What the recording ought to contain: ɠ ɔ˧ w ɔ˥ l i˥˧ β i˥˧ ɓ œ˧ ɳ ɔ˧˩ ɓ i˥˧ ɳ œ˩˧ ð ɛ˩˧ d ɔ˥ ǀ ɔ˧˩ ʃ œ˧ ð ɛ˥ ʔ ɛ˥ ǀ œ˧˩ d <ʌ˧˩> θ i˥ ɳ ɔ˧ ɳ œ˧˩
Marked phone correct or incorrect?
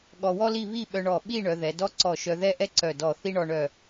incorrect